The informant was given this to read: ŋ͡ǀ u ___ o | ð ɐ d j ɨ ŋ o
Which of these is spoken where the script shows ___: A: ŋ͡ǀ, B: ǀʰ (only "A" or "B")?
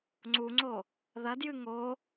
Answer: A